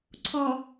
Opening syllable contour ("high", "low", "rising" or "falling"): low